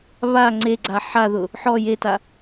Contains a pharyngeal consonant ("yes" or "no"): yes